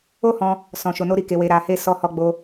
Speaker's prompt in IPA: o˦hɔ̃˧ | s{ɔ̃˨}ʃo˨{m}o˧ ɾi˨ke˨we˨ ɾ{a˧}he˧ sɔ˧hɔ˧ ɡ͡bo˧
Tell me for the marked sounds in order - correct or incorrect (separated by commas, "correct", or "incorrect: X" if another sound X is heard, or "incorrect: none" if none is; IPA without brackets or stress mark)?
correct, incorrect: n, incorrect: a˨